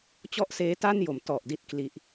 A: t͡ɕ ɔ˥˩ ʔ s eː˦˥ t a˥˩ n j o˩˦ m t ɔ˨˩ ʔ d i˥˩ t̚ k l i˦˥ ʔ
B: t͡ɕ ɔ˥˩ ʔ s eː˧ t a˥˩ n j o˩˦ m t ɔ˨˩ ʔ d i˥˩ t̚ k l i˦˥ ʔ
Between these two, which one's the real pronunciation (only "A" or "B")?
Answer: A